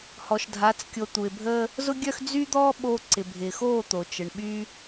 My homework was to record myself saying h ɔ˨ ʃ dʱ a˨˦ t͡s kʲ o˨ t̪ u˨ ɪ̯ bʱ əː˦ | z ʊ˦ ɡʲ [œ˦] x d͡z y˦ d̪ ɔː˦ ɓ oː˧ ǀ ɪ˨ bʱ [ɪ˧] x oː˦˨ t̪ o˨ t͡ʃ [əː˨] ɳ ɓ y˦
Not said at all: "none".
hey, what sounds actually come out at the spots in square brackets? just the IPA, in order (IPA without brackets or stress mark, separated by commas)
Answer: œ˦, ɪ˨, ə˨